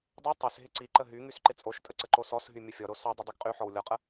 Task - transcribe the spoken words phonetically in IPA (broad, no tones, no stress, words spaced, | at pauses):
dˤɪ tˤys ɦɪǀiǃə ɦy ŋysǃɪt͡sʼoʃtʼə ǀəǃosɔsɦy mʲəfʲɔɾo sɔdˤə dˤyɡqʼyħɔw lʲɔqʼə